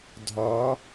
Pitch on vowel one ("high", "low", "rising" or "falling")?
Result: rising